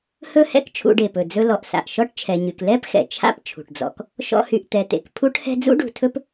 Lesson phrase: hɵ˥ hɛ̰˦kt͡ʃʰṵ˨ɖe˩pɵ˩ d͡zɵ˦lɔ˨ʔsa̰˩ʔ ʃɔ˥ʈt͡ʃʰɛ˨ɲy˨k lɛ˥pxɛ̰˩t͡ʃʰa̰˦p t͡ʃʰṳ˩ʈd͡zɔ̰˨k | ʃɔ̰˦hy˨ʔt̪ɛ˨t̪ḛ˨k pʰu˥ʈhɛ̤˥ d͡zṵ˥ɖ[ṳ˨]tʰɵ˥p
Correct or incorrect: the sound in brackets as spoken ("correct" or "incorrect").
correct